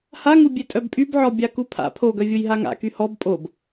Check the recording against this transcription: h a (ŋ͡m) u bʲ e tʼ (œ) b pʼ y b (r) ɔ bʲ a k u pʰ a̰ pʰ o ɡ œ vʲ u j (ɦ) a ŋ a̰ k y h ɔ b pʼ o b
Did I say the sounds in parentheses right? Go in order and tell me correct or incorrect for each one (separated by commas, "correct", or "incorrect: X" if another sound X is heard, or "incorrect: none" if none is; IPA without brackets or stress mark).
incorrect: ŋ, correct, incorrect: ʕ, correct